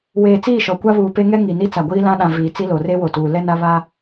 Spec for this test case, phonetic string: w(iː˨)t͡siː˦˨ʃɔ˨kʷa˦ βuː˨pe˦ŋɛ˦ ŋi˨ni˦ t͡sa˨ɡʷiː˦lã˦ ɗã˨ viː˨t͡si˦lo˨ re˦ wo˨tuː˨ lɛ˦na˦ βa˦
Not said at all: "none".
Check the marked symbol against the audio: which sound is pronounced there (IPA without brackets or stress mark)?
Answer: eː˨